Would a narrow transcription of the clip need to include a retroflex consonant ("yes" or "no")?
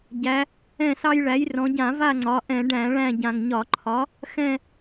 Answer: yes